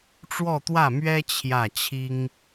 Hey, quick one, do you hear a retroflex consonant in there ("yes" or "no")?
yes